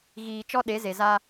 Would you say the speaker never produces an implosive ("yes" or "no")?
no